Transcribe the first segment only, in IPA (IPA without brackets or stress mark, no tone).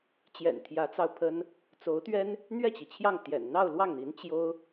t͡ɕ